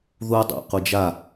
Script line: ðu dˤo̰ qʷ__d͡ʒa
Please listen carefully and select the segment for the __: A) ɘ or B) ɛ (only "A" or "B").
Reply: A